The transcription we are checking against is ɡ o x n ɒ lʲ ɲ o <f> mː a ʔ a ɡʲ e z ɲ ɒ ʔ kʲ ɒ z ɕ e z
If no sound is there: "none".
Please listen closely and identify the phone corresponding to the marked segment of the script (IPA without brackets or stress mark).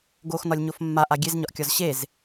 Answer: f